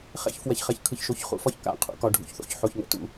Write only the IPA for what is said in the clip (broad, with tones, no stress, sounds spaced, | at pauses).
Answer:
χ ɛ̰˦ ç f w ɛ˨ ç χ ɛ˨ ç kʰ ɯ˨ ç ʃ o˨ ç χ ṵ˦˨ f ɒ˦ ç k a̰˦˨ qʰ ṵ˦ k ɒ˨ ɖʱ ṵ˨ ç θ o̰˦ ç ħ o˨ ç ŋ ɛ̰˨ t ṵ˦